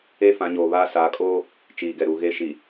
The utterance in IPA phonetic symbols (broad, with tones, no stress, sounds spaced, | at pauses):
e˦ f ã˨˦ ɲ oː˨ β aː˦ s a˨˦ kʼ oː˦ | t͡ʃ iː˨ ɡ ɛ˨ ɾ u˨ ɣ e˦ ʃ iː˨